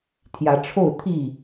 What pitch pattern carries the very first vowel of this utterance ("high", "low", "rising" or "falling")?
rising